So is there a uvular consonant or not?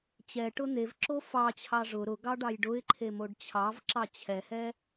no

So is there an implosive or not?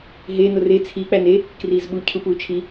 yes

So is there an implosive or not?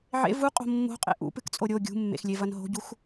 no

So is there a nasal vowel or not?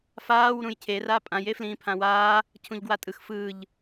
yes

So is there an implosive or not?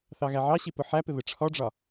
no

